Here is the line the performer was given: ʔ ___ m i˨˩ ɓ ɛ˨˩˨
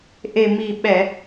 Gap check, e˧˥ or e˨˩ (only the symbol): e˨˩